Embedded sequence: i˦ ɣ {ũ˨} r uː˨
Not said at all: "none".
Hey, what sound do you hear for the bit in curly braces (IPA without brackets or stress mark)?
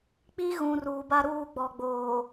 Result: ũ˨